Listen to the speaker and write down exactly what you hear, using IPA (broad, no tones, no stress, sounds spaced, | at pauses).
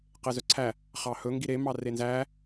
q e z œ ǀʰ æ | χ ɑ h ɵ ŋ ɡ i ɾ e m ɑ r e n z æ